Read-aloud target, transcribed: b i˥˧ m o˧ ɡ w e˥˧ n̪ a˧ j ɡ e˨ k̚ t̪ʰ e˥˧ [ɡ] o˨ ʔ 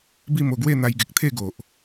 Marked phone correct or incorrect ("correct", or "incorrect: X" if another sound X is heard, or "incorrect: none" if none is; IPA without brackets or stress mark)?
correct